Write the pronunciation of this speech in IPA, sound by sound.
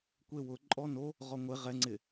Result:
kʷ e w ʊ ǃʼ ɔ n o | ʁ ɔ ŋʷ e ʁ ɛ ŋ͡ǀ ɪ

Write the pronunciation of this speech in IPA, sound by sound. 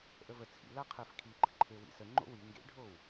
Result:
ʔ ə v ə t͡sʰ ḭ l a qʰ ɜ f kʰ i ɡ͡ǃ ə ǃʰ e w ḭ s ə ŋ͡ǃ o̰ w i ŋ ɡ ḛ ɖʱ o w

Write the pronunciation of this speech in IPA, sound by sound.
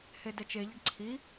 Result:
h e d ɛ t͡ʃ e ʎ ɛ ɖ ǀʰ i

